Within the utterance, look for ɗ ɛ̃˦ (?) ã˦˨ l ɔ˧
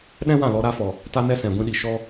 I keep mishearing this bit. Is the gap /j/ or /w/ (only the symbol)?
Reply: w